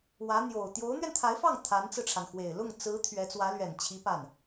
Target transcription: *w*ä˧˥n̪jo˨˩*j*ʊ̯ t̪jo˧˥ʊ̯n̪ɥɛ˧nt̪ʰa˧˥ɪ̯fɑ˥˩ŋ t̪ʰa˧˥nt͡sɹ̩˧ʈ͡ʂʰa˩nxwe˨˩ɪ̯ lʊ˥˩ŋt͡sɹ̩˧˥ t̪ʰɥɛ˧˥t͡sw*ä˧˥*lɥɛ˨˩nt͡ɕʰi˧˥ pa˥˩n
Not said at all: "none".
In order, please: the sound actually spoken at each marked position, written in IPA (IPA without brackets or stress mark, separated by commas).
w, none, ä˧˥